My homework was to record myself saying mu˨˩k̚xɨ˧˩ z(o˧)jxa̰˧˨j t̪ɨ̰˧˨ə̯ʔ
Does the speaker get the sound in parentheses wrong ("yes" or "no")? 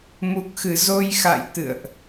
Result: no